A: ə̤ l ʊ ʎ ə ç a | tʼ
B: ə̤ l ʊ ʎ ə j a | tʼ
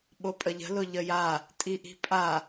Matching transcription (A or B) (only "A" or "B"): B